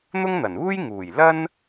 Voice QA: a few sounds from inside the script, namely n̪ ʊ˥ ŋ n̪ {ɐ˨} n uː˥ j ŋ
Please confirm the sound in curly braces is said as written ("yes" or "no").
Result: no